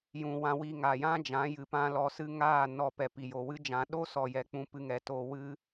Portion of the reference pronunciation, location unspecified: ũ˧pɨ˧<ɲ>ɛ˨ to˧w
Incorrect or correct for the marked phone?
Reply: incorrect: ŋ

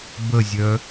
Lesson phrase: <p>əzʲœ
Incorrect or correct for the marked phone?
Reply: incorrect: b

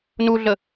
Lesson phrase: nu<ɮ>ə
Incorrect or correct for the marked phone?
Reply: correct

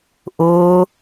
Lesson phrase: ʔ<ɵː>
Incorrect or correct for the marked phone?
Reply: incorrect: ʊː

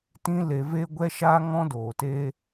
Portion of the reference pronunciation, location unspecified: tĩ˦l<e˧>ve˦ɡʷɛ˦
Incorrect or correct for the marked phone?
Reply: correct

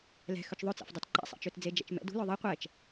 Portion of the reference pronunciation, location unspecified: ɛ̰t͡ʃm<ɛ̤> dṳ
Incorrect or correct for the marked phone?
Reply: incorrect: ɛ̰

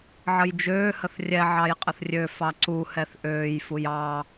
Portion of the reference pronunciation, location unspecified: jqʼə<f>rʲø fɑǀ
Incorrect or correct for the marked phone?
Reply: incorrect: θ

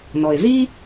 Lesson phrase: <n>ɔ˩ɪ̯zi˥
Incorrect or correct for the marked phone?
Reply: correct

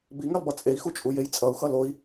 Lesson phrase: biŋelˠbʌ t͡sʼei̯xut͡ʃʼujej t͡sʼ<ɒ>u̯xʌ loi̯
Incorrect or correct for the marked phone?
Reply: incorrect: ʌ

